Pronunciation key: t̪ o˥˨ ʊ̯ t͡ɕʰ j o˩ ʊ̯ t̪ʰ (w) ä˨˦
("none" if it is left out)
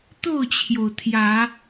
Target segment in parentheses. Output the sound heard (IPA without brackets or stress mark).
j